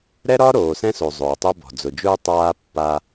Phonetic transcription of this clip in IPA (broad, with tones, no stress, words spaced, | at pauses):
ɾɛ˦ɾɒ˦ ɾoː˨sɛ̃˦so˨ zˤʊː˨tˤɛ˦bɔ̤˨ d͡zʊ˨d͡ʒʊː˦ tˤaː˦pːa˦